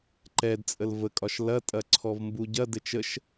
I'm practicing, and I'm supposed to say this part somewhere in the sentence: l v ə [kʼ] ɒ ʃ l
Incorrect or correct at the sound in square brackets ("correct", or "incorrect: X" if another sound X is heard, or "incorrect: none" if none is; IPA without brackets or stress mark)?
correct